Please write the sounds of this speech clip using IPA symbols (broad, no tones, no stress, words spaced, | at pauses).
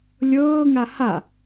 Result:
lʲɤːŋa ha